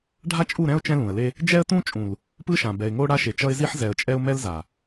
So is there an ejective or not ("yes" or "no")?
yes